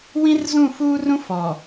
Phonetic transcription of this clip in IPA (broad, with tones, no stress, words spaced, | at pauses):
wĩ˦rzũ˦˨ fuː˦rũ˦ fɔ˨